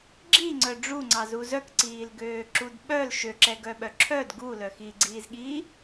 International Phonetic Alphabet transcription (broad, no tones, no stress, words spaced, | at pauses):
ɡ͡ǁiŋ͡ǀœ ɖ͡ʐuŋ͡ǀɑzu zœkǀiːl ɡøːǁudɓœl ʃøǁɛɡœɓœ ǁʰœd ɡu lœxiɡ͡ǀiːzɠiː